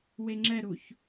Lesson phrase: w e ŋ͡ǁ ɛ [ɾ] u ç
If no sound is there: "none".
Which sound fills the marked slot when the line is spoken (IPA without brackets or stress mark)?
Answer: ɾ